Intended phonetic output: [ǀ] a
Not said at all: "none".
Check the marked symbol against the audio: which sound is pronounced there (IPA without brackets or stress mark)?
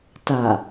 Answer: t